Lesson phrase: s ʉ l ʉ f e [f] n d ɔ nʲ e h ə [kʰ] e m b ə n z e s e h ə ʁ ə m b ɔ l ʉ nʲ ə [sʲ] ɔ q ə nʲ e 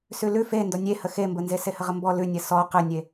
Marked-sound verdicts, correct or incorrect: incorrect, incorrect, incorrect

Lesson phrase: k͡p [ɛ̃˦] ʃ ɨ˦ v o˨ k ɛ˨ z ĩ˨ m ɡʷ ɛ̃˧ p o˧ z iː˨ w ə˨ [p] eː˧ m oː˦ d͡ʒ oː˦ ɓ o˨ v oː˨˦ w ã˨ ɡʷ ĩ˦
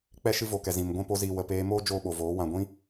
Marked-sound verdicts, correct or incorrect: incorrect, correct

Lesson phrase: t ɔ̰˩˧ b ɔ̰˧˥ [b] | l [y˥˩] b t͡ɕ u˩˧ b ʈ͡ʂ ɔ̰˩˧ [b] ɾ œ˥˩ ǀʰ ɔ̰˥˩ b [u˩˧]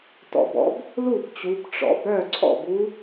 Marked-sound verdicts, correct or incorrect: correct, incorrect, correct, incorrect

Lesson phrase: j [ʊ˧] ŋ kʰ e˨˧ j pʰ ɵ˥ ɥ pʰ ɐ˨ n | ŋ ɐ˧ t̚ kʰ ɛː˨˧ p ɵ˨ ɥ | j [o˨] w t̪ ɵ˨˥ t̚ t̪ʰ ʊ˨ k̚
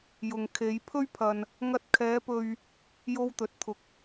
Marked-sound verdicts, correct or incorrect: incorrect, incorrect

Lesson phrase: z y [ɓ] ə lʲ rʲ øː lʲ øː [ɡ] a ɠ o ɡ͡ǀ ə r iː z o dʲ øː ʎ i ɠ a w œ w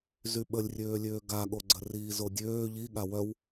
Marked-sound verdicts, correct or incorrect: correct, correct

